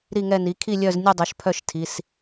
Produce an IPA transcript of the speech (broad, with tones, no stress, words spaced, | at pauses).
ɾi˥˨ŋɛ˥˨ni˩˥ kʰi˥˨lʲœ˥˨znʲu˥˨ dˤo˩˥ʃpʰœ˥˨ʃtʰi˩˧˩s